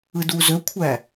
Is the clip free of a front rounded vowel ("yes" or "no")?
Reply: no